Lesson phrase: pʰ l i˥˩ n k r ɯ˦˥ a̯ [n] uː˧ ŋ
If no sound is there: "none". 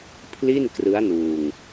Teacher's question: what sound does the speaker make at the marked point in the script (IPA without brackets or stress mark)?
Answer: n